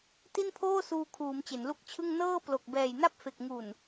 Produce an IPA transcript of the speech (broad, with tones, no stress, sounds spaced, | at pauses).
t i˥˩ n pʰ oː˥˩ s uː˧ kʰ uː˩˦ m t͡ɕ e˩˦ n l u˦˥ k̚ t͡ɕʰ ɯ˥˩ ŋ n ɤː˥˩ p l o˨˩ k̚ b ɛː˨˩ j n a˥˩ p̚ f e˨˩ k̚ ŋ u˨˩ n